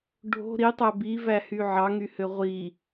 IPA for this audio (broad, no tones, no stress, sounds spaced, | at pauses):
ɖʱ o̤ ɾ i tˤ æ b i v æ h y ʕ ɑ ŋ y h ø ʁʷ i